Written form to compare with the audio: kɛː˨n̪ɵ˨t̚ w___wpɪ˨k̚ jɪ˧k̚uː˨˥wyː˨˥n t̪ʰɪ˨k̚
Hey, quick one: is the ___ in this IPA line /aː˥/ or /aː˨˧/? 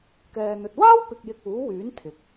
aː˥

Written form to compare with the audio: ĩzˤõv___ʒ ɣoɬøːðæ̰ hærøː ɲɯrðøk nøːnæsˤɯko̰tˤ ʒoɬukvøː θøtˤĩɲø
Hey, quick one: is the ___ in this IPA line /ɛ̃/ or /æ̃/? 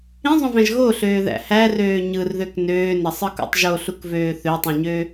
æ̃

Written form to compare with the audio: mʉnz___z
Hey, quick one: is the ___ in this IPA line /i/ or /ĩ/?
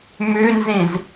ĩ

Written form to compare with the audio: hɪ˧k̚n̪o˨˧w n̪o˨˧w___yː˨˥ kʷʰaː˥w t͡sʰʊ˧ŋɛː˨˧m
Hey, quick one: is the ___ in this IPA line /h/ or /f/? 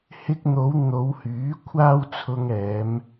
h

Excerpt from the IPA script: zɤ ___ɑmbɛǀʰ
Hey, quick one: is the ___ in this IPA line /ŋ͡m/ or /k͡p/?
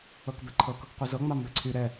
ŋ͡m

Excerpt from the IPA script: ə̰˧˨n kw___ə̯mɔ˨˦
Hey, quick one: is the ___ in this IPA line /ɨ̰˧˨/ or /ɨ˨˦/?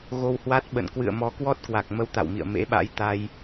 ɨ̰˧˨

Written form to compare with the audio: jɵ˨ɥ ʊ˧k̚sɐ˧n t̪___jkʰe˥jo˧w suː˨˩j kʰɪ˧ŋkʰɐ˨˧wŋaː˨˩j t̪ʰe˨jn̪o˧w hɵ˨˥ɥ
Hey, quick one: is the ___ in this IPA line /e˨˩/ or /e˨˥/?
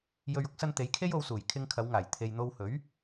e˨˥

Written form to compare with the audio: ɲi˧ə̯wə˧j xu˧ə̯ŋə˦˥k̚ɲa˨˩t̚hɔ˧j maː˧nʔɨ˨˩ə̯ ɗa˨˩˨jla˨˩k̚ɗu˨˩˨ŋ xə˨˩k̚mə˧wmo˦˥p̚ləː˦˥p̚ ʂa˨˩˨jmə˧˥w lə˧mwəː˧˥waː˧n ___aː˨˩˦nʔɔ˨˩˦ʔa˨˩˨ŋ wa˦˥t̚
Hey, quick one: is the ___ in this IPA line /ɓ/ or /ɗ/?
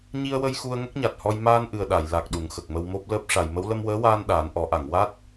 ɗ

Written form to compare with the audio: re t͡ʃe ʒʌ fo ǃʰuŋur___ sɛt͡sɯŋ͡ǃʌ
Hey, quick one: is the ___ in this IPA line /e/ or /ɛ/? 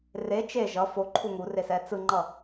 e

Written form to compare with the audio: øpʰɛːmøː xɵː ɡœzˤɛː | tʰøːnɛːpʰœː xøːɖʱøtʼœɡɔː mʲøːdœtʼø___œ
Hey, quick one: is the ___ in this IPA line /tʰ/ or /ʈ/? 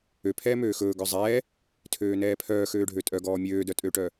ʈ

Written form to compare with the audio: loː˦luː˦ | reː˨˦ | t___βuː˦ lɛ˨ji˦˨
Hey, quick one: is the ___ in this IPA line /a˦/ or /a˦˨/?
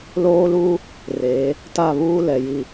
a˦˨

